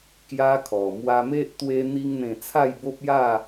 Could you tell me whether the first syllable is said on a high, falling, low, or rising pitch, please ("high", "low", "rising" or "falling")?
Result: high